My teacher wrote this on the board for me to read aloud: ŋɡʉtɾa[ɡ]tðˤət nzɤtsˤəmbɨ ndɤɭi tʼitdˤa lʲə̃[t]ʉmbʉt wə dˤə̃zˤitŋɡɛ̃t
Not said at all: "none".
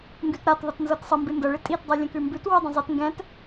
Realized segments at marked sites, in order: none, k

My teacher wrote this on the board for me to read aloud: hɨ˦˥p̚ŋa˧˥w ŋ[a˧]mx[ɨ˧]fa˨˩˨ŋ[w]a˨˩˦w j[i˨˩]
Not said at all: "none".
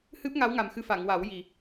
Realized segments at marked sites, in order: a˨˩, ɨ˧, w, i˨˩

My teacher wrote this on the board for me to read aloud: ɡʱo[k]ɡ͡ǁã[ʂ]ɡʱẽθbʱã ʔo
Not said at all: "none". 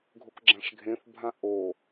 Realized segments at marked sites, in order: k, ʂ

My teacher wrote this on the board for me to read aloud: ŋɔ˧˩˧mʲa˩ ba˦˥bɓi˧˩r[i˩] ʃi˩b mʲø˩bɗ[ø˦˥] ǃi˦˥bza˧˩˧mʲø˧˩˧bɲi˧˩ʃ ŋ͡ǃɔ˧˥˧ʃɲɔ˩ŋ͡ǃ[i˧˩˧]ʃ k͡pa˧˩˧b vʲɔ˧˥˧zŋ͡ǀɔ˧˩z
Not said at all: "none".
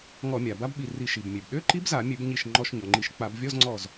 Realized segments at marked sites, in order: i˧˩˧, ø˧˥˧, i˧˩˧

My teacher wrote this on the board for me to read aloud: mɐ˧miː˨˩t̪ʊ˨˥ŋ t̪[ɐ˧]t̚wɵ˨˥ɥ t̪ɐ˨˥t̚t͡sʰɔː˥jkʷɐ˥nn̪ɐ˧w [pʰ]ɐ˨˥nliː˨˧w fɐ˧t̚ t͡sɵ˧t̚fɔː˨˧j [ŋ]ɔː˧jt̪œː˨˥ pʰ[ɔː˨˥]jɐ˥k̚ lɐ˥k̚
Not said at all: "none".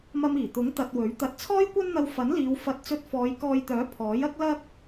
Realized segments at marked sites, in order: ɐ˧, f, k, ɔː˨˥

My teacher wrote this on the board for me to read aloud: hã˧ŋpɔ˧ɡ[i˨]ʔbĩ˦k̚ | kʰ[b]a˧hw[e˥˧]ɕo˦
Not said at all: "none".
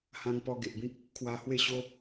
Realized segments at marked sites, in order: e˨, w, e˥˧

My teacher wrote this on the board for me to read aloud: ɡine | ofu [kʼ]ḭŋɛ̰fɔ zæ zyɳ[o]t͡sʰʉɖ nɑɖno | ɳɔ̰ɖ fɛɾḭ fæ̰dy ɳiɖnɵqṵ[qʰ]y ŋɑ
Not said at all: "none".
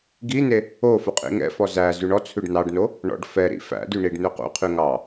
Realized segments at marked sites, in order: qʼ, ɔ, qʰ

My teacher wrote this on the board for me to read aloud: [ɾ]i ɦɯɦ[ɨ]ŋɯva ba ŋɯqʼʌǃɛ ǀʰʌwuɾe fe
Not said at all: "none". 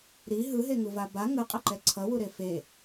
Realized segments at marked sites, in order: ɾ, e

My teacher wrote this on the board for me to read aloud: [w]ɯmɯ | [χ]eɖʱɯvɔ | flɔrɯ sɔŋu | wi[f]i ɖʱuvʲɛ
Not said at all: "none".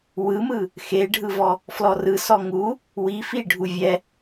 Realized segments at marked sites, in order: w, x, f

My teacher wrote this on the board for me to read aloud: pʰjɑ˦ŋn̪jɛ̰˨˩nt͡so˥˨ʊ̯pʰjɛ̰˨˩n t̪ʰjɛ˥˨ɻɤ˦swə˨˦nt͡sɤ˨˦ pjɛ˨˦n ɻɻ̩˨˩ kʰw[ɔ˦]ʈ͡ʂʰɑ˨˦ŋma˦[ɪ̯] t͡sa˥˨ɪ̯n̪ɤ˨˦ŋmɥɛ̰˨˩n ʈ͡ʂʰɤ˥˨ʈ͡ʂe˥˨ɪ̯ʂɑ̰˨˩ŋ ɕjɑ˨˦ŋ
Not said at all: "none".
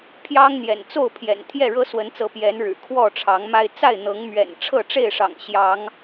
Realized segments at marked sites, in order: ɔ˥˨, ɪ̯

